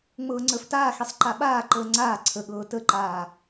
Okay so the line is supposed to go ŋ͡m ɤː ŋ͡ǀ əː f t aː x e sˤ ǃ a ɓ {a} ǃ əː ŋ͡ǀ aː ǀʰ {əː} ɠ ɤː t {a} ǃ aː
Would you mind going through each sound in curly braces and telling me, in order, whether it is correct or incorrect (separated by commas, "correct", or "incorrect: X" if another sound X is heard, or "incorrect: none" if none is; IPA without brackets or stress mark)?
incorrect: aː, incorrect: ə, incorrect: ə